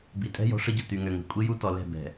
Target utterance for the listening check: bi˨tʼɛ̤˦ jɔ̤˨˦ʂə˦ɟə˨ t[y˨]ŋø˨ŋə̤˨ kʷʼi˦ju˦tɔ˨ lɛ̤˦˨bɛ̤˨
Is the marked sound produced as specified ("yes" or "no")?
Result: yes